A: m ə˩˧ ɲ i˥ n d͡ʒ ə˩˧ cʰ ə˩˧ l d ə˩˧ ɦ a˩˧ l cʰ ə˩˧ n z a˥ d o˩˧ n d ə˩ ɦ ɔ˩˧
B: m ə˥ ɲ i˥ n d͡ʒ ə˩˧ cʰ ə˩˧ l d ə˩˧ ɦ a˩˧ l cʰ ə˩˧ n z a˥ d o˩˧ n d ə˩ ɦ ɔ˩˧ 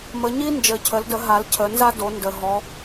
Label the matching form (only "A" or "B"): A